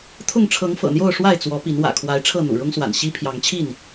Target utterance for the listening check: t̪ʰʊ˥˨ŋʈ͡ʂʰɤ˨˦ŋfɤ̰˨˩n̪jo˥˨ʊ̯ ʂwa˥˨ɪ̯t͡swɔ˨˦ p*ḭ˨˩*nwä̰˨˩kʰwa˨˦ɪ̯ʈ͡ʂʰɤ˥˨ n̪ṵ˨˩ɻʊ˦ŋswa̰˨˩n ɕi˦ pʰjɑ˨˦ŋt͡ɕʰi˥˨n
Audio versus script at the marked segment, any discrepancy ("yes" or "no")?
yes